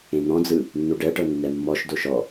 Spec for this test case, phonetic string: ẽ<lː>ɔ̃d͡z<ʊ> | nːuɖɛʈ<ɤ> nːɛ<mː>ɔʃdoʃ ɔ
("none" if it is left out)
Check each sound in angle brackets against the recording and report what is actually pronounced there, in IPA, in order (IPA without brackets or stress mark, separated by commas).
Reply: n̪, ɯ, ɤ, mː